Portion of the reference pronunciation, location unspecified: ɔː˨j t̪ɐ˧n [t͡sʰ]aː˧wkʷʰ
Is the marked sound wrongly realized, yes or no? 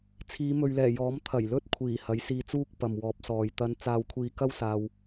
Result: yes